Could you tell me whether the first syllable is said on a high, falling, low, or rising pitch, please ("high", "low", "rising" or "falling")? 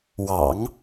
low